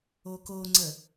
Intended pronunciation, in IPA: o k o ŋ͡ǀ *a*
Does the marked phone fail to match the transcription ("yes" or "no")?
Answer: yes